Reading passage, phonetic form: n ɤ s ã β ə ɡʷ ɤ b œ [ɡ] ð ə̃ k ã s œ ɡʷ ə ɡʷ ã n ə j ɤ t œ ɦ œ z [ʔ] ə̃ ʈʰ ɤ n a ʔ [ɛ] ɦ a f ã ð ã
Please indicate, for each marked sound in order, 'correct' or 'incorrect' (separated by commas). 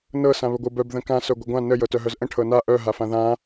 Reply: incorrect, correct, incorrect